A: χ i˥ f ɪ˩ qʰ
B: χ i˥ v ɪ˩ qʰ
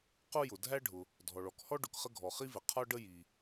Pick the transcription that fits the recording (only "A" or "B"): B